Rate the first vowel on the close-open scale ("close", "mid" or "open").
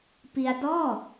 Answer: close